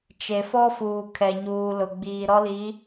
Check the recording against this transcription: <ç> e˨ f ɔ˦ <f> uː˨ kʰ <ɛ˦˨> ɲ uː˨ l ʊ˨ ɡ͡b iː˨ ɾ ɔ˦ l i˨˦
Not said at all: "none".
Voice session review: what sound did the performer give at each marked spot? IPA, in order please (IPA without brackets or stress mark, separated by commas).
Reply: t͡ʃ, f, ɛ˨